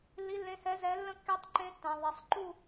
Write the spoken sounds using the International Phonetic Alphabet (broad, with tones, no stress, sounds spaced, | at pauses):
lː i˧˥ lː ẽ˧˥ h ɛ˧˥ z ɛ˧˥ lː ə̃˥˧ kː i˧˥ tˤ ǃ ẽ˧˥ tː ã˨ ðˤ e˨ sˤ ǃ u˥˧